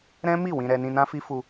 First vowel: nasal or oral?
nasal